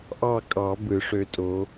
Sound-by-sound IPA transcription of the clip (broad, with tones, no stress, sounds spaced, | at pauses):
ʔ ɑ˦˨ kʼ ɑ˨˩˦ b ɯ˨˩˦ ʂ ø˧˥ tʼ o˧˥